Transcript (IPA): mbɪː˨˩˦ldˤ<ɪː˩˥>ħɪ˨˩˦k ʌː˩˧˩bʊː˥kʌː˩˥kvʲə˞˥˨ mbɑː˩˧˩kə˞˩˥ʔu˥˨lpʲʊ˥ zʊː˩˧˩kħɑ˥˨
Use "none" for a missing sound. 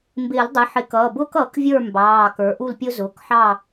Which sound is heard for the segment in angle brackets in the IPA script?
ɪ˩˥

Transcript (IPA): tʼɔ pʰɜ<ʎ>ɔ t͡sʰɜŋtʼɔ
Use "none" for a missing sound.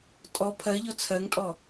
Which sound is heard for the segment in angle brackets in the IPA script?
ʎ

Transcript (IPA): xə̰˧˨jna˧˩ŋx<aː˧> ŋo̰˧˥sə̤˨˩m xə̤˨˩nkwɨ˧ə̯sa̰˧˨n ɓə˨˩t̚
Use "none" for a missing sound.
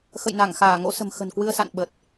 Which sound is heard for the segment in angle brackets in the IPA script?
aː˧˩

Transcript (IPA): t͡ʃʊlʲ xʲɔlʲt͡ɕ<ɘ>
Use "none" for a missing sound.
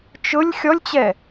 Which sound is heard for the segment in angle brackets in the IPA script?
ɛ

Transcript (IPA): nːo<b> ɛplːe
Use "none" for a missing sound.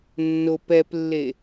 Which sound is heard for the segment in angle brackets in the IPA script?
p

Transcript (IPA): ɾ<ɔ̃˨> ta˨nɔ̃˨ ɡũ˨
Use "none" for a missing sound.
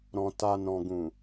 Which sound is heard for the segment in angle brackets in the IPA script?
ɔ̃˨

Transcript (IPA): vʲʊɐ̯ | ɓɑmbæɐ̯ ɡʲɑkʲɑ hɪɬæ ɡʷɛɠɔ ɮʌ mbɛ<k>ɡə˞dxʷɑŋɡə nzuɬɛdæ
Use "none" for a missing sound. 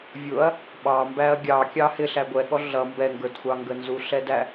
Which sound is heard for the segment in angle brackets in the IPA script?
ŋ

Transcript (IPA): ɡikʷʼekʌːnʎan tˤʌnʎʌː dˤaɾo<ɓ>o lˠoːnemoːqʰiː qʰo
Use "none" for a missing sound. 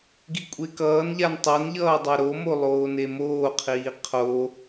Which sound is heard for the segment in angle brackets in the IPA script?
m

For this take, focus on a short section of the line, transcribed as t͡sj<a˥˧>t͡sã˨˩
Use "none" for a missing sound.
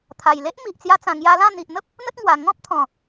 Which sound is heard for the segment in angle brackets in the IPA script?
a˧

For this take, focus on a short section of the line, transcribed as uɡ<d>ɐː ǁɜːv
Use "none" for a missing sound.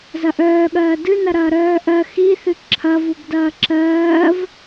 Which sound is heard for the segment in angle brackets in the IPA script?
d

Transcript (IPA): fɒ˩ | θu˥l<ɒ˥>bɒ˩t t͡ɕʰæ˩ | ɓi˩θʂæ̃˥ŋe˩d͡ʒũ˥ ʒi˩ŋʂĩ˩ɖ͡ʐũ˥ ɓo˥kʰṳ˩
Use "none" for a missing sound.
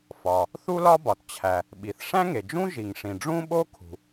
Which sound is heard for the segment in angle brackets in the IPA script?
ɒ˥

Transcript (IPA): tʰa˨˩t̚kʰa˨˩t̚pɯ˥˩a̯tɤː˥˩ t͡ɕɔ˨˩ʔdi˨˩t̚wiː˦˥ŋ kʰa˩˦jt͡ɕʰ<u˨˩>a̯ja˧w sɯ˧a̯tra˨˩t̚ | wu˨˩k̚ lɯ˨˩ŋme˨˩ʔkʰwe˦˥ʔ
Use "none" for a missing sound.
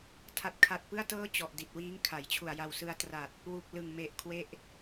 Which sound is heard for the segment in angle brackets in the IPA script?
u˨˩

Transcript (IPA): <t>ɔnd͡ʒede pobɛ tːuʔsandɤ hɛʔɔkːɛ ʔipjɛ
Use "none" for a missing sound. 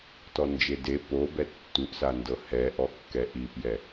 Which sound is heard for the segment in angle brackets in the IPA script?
t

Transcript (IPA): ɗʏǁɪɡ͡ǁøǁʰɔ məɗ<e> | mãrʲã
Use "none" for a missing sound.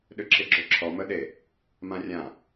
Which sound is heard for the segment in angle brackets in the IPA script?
e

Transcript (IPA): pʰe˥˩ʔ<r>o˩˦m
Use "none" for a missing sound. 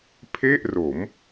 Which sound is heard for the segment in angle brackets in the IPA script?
r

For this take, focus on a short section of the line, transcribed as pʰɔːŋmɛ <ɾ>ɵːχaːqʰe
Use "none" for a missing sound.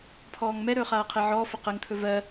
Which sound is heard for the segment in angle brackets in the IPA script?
ɾ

